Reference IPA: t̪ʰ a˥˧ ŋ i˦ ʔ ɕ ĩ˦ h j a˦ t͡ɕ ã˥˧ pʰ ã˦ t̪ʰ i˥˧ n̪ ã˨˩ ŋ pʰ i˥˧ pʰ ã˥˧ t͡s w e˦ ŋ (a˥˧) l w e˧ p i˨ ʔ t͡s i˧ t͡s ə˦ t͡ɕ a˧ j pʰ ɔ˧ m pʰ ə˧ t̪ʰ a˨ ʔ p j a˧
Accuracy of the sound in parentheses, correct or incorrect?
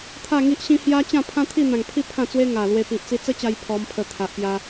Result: incorrect